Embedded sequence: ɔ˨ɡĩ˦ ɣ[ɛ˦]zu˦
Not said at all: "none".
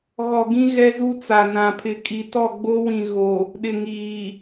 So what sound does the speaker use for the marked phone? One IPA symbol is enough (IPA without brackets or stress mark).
ɛ˦